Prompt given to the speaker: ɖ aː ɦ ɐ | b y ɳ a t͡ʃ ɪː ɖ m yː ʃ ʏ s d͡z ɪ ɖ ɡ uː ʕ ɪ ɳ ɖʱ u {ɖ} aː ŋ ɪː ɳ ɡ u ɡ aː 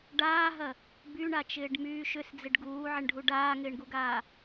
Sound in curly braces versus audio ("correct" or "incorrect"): correct